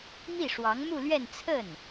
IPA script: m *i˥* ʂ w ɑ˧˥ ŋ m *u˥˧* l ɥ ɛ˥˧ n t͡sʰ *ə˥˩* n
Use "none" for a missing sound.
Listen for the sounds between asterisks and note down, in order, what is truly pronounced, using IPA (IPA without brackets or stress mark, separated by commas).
i˥˩, u˥˧, ə˥˩